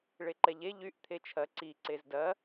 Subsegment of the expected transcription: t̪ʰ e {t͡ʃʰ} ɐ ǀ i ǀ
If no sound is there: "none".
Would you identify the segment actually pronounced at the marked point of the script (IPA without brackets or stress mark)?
t͡ʃʰ